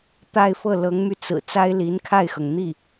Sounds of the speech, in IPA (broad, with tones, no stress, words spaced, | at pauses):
t̪a˥˧ɪ̯fɤ˥˩ lɤ˧˥ŋmy˧t͡sɹ̩˨˩ t͡sa˥ɪ̯li˧˥nkʰa˥˩ɪ̯xɤ˩ŋ n̪i˥˩